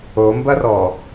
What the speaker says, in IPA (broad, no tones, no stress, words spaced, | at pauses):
ombɐrɔ